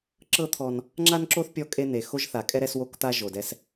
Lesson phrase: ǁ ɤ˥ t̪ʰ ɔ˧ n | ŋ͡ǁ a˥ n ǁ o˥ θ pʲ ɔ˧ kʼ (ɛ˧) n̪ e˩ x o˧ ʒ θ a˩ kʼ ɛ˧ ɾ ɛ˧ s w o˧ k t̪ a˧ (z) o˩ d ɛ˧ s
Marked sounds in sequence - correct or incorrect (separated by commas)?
incorrect, incorrect